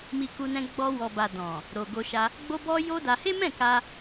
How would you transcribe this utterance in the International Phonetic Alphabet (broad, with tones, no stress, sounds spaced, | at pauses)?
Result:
m i˧ k u˧ n ɛ̃˧ ɡ͡b ɔ˧ w ɔ˨ b a˨ d ɔ̃˨ | ɾ o˨ ɡ o˧ ʃ a˧ | ɡ͡b o˦ b ɔ˦ j o˦ d a˧ h e˦ m ɛ̃˦˨ k a˧